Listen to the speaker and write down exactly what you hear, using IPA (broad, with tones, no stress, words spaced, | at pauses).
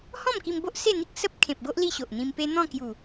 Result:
hɔ̃˥˧mki˧mbo˦ʔ se˥˧n̪i˦k̚ sə˦p̚ kʰẽ˨p̚ɡo˦ʔ li˥˧ɕo˨ʔn̪ĩ˧mpe˦ n̪ɔ̃˥˧kju˨˩